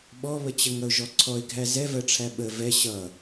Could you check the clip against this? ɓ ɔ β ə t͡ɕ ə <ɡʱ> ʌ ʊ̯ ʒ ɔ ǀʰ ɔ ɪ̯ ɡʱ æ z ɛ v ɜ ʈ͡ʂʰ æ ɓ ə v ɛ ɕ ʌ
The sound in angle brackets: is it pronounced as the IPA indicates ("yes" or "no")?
no